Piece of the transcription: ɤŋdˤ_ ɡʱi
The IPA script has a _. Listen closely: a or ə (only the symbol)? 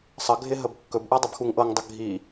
ə